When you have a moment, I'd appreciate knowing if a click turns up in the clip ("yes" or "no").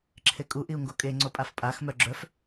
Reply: yes